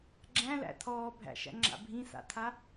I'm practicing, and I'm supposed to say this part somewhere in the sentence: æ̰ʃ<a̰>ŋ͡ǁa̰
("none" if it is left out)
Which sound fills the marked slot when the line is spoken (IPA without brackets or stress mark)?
æ̰